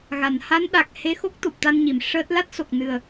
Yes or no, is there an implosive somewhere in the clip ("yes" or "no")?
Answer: yes